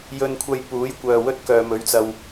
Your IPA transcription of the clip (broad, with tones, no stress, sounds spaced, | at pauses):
j ɵ˧ n kʷʰ ɐ˧ j p uː˨˥ j kʷ œː˨ w ɵ˥ t̚ k œː˨ m ɵ˨˧ ɥ t͡s ɐ˨ w